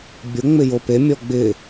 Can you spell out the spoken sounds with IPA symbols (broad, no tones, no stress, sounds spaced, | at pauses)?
bʲ ʊ ŋ͡m ɪ j o p e mʲ ɔ ɡ͡b ɪ